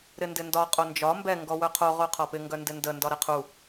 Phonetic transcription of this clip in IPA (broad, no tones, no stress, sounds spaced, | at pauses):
ɾ ɪ n d ɪ n d ɒ qʼ o n d͡ʒ ɒ m b ɛ ŋ ɡ ɔ w œ qʰ o ʁ o qʰ ɒ p ɪ ŋ ɡ œ n d ɪ n d ə n d ɒ ɾ ɛ qʰ u